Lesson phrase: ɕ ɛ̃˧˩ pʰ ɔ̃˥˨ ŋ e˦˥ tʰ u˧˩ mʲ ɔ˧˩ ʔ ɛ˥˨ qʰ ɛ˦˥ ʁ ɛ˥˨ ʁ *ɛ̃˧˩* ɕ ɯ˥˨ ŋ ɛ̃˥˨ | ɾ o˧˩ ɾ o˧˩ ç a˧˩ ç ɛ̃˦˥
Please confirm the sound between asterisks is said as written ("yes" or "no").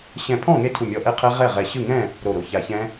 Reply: no